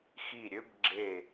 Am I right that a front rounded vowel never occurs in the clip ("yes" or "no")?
no